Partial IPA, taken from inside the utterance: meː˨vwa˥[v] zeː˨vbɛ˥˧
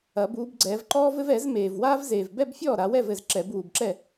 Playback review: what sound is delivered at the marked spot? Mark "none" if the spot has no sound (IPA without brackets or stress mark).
v